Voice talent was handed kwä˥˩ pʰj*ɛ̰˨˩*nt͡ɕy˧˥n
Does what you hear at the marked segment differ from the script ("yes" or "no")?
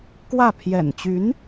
no